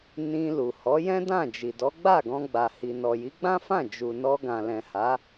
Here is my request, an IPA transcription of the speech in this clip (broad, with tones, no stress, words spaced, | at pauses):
nĩ˧ lu˨hɔ˨˦ jɛ̃˦dã˦˨d͡ʒi˨dɔ˨˦ ɡ͡ba˦˨ɡɔ̃˧ɡ͡ba˨hi˨ nɔ˨ji˨˦ɡ͡bã˦fã˦˨ d͡ʒu˨nɔ˧ɡã˨ lɛ̃˨ha˨˦